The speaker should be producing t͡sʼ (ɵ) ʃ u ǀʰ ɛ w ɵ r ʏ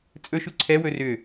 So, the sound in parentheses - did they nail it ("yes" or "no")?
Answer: yes